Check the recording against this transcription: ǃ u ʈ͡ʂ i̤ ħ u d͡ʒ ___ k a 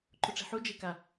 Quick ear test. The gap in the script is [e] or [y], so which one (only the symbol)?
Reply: e